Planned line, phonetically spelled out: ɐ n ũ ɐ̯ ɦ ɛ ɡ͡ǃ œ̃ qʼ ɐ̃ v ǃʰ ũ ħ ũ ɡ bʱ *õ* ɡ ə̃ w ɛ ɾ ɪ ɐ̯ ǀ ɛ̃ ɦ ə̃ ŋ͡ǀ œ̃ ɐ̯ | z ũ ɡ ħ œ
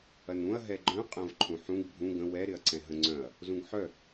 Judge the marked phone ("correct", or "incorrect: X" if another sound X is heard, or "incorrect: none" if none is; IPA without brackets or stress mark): incorrect: ũ